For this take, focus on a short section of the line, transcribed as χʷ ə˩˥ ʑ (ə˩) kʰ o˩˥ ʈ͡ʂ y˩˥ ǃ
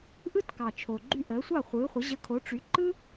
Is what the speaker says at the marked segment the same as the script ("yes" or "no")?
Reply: no